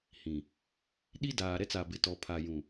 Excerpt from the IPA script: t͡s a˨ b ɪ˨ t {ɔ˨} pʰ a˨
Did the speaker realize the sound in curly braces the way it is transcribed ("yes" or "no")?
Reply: yes